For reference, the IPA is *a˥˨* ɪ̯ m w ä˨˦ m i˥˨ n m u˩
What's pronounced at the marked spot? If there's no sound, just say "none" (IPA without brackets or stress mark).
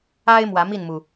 a˦